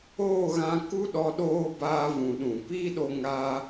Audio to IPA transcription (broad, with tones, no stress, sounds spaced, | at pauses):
oː˦˨ ɣ ã˧ k u˦ ɗ ɔ˧ ɗ oː˦ b aː˧ v ũ˨ ɗ ũ˨ p iː˦ ɗ o˧ ŋ aː˦